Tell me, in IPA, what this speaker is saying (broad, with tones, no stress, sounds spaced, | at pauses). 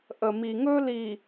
ʔ ə˨ m i˨ ŋ ɵ˦ l i˨